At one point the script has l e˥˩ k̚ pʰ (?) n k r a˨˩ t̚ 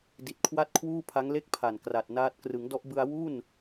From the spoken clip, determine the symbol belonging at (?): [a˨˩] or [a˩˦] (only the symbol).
a˨˩